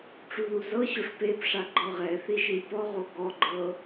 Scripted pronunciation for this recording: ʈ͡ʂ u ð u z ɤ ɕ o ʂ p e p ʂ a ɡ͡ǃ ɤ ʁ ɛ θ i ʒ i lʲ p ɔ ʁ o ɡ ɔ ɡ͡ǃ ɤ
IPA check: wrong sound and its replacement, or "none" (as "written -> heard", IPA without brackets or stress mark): none